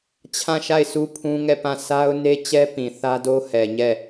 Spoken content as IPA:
t͡ɕʰ ã˦˨ ʃ a˦˨ ɪ̯ s u˦ pʰ ũ˦ ŋ ɛ˦˨ p ã˦˨ s a˦ ʊ̯ n e˦ t͡ɕ ɛ˦ p ĩ˨ θ ä˦ d o˦ h ɛ˨ ɲ ɛ˦˨

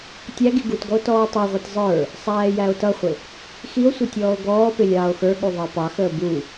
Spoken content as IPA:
tʲ æ ɡ i ɡ u t ɡ ɔ o̯ t ɔː tˤ ɛ ʁʷ ɛ t zˤ ə˞ | sˤ æː j æ o̯ t ʌ χʷ ɪ | x i o̯ sʷ ɪ tʲ ɔː o̯ ɡ ɔː p ɪ lʲ ɑː o̯ x ə˞ ɠ u ðˤ ɑ p ɑ x əː b u

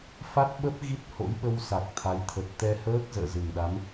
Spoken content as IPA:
f a˦˥ t̚ ɓ ə˦˥ p̚ ɣ i˦˥ t̚ h o̰˧˥ j ɓ ə˧ w s a˨˩ k̚ t̪ʰ a˨˦ j t̪ʰ ə˨˩ t̚ t̪ ɛ˧ h əː˦˥ k̚ z ə̰ː˧˨ z ɨ˨˩ ŋ ɗ a˨˦ m

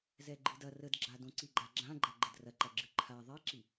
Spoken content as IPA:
z ɛ ɡ͡ǃ ɨ d ɐ r ə d ɡ͡ǁ a d õ ǀ i ɡ͡ǃ a ɡ͡ǁ ã ɡ͡ǃ ɐ ɡ͡ǃ ə d r ɐ ǃ ɐ ɡ͡ǁ ɨ ǃʰ a ðˤ ɛ ǁ i

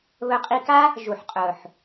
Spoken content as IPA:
β ɵ˧ qʼ i˧ k a˦ | ʒ u˨ ħ qʼ ɵ˨ ħ

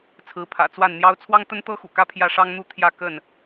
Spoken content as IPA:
t͡sʰ ɹ̩˨˦ pʰ ä̰˨˩ t͡s w a˥˨ n n̪ j ɑ˦ ʊ̯ t͡sʰ w ɑ˦ ŋ t̪ ə˦ n t̪ ɤ˦ x ṵ˨˩ k ä˥˨ pʰ j ä˥˨ ʂ ɑ˦ ŋ n̪ u˥˨ t̪ʰ j ä˥˨ k ə˥˨ n

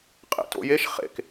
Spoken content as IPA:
qʼ ḛ t o̰ j e ʃ χ ḛ k

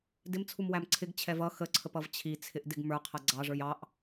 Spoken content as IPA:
d ɪ m t͡sʰ u m w æ m ǀʰ ɪ ɡ t͡ɕʰ ɛ v ʌ x ə ǀʰ ə p ʌ v t͡ɕʰ i t͡sʰ ɪ ʔ d ɪ ɡ m ə˞ qʰ ʌ ɡ͡ǀ ɑ ʐ ə˞ j ɑ ʔ

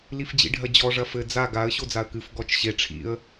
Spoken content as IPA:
l i f d͡ʑ ḭ ɖʱ ɐ d͡ʑ ɔ ʐ ɐ f ɘ d͡z a ɡ a ə̯ ɕ o d͡z a ə̯ k ɨ f ɡ ɔ t͡ʃ ɕ e ʈ͡ʂʰ ḭ ə̯

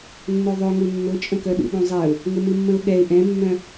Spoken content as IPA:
nː œ ðˤ œ ŋ u nː ʊ t͡ʃʼ ə̃ k œ ɗ ṵ ɗ ũ zˤ ɛ ʊ̯ | ŋ ʊ m ɨ mː ə̃ ʊ̯ ɠ ɛ ɪ̯ ʔ ɛ̃ mː œ̃

